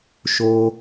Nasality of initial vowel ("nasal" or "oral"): oral